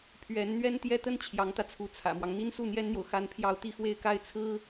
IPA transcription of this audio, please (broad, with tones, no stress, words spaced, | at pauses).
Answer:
pʰɥɛ˧˥n n̪ɥɛ˥nt̪jɛ˥t̪ə˥n t͡ɕʰjɑ˧˥ŋt̪ä˧t͡sʰu˧˥ t͡sʰä̰˨˩mwɑ˦ŋ n̪i˥nsu˥˩n̪jɛ˥nn̪jo˨ʊ̯ xa˥npʰjɑ˥˧ʊ̯ t̪i˥˧xwe˥˧ɪ̯ka˥˩ɪ̯ t͡sʰɹ̩˥